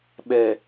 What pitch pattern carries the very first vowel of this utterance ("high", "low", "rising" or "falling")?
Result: low